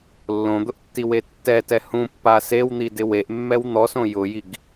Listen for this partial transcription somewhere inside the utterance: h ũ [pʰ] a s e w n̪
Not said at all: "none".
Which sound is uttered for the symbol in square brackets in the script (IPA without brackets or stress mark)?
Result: pː